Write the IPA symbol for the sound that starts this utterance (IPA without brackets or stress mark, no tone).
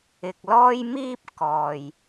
ɪ